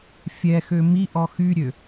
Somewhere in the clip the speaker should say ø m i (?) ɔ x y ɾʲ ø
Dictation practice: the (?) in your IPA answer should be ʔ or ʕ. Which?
ʔ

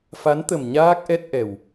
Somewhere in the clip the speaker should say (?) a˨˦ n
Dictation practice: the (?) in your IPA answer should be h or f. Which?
f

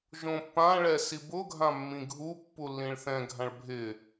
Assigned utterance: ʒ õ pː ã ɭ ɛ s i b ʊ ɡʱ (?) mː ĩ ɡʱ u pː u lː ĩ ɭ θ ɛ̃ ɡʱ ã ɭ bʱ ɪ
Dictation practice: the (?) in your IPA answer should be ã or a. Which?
ã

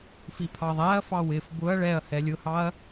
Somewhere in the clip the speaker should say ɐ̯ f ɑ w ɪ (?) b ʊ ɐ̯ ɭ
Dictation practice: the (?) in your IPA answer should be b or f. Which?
f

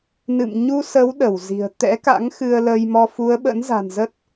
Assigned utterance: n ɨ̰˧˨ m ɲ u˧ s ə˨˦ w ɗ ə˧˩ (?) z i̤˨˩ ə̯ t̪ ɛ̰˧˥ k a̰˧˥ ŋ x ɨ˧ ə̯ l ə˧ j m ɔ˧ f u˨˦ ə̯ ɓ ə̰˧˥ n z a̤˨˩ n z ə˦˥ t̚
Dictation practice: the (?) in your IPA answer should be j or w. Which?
w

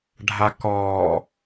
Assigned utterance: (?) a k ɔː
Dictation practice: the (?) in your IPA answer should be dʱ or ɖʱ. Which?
ɖʱ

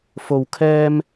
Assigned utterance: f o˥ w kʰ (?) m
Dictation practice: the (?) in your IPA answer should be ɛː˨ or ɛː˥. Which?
ɛː˥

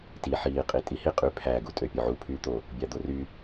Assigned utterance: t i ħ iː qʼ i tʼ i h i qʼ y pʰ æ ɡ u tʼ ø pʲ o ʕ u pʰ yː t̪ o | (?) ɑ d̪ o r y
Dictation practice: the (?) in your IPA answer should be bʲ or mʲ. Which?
bʲ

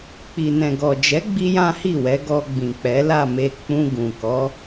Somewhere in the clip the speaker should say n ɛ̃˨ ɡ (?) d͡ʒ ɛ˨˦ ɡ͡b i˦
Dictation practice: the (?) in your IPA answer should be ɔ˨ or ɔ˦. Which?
ɔ˨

